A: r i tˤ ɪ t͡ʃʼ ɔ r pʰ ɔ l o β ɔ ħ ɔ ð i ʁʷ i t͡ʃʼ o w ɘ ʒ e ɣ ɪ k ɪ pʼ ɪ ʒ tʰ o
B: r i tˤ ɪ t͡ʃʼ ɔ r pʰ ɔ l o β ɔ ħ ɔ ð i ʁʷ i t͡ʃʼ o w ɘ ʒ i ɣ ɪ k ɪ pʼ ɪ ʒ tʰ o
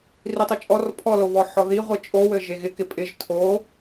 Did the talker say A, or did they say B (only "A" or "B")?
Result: A